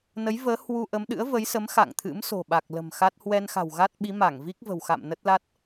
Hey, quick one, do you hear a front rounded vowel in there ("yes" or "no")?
no